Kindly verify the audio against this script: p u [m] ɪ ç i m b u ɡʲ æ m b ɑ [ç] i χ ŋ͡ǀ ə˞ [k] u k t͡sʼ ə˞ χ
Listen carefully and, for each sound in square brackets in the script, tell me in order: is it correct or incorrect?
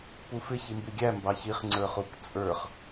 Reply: incorrect: f, correct, incorrect: χ

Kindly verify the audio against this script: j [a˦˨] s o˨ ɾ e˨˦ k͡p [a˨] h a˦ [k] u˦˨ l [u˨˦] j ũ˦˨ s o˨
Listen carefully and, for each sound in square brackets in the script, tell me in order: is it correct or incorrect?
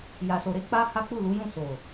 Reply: incorrect: a˨, incorrect: a˦, incorrect: k͡p, correct

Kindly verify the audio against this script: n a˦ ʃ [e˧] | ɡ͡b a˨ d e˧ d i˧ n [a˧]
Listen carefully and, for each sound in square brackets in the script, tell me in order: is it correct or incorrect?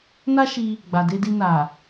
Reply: incorrect: i˧, incorrect: a˨

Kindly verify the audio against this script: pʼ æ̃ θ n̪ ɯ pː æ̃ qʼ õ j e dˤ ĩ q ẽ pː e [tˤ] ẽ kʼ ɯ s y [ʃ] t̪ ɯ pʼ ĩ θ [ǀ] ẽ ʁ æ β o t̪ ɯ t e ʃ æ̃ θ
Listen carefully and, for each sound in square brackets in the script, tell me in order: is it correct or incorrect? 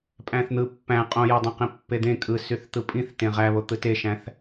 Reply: incorrect: d̪, incorrect: θ, incorrect: t

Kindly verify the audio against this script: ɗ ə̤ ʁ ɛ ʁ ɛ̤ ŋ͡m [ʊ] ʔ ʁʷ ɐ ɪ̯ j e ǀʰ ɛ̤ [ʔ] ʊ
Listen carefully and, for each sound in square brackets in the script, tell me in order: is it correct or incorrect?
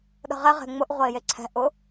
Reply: correct, correct

